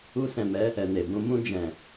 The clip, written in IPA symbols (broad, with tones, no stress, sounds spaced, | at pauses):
u˧ s ɛ̃˨ m ɛ˨˦ | ɛ˨ n e˨ b ũ˧ m ũ˧ d͡ʒ ɛ̃˨